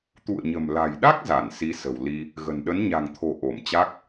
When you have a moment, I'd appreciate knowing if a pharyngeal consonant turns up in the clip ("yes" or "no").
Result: no